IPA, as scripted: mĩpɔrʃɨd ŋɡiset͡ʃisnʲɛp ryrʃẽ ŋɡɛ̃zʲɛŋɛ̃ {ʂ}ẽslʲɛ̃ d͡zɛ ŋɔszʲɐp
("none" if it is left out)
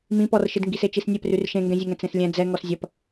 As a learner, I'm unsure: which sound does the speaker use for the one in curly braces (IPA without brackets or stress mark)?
t͡s